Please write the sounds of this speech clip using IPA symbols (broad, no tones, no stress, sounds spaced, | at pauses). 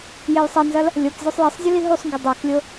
j e j sˤ ɐ n z ɐ l | lʲ o k zʲ o sˤ j ɛ sˤ zʲ u l i ɦ u sˤ ŋ ɡ ɘ dˤ e k lʲ o